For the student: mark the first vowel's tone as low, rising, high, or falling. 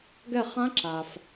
falling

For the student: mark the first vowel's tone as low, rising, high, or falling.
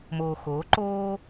low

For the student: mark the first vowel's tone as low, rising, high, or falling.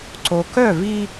low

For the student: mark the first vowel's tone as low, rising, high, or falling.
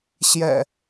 low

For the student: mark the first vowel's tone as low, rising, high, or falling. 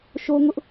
high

